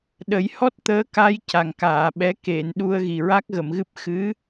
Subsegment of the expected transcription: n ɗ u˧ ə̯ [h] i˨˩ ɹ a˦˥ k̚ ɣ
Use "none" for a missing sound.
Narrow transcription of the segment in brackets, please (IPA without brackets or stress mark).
ɣ